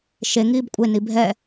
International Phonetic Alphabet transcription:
ʃ e ŋ iː b kʷʼ e n i bʱ ɛ

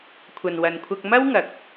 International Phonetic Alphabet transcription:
kʷʰ ɐ˨ n w ɐ˨ n kʷʰ ɐ˧ k̚ m ɐ˥ w ŋ ɐ˨˥ k̚

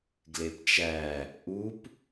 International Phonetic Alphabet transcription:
ɡ l e p t͡ʃ æ | ʔ u p

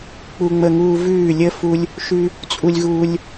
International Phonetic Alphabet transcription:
k͡p u˧ ŋ͡m ə˧ ŋ uː˧ v ʉː˧˩ lʲ ə˧ f u˧ lʲ | ʃ ʉ˧ | t͡sʼ u˧ lʲ ɣ uː˧ lʲ

